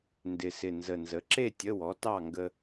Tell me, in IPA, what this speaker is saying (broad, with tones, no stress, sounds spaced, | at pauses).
n d ɪ˨˩ s ɪ˨˩ n z ə˨˩ n z ə˩˥ ǁ e˥˨ tʲ ə˧˥˧ w ɔ˩˥ t ɑ˥˨ ŋ ɡ ə˧